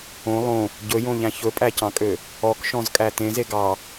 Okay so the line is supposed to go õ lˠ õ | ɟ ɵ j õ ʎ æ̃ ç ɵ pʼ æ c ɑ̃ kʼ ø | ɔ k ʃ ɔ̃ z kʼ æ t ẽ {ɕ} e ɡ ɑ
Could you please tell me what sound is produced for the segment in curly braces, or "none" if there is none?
z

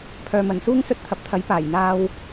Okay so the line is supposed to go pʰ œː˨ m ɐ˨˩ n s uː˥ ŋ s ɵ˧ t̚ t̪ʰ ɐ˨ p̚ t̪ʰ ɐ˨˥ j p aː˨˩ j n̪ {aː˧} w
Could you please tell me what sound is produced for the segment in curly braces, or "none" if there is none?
aː˧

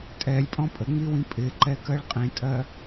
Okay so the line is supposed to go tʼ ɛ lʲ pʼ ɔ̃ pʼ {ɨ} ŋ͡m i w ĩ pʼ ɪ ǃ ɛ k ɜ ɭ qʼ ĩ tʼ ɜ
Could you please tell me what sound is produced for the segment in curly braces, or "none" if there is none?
ə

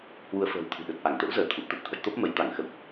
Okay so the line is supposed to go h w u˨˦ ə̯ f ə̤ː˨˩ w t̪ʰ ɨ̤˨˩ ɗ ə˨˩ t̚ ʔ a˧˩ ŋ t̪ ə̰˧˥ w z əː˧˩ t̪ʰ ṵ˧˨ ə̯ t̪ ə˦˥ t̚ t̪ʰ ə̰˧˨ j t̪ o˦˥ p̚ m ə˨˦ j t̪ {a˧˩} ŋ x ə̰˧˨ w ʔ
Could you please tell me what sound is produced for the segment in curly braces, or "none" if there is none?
a˧˩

